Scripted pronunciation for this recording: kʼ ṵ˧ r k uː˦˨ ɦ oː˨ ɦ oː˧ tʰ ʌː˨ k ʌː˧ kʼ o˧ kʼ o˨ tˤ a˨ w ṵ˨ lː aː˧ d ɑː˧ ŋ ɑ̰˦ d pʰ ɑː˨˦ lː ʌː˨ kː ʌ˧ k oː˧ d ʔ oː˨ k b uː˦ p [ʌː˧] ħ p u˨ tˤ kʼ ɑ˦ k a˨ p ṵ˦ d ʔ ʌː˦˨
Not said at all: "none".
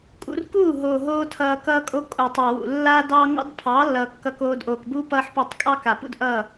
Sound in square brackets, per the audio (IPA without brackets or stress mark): ʌː˧